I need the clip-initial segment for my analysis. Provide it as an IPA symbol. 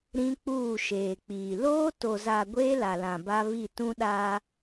ɾ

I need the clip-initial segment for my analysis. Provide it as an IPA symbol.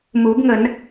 m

